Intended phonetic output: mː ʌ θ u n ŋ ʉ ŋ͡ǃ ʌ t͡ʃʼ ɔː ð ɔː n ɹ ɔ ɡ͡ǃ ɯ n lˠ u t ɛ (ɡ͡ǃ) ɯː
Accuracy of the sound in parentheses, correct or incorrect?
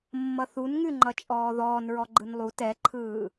incorrect